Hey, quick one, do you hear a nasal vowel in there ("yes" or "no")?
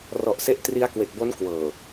no